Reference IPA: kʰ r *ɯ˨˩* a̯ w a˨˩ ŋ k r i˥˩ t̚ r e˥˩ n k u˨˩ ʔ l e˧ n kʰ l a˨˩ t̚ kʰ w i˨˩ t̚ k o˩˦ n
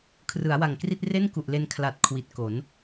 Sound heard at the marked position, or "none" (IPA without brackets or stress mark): ɯ˩˦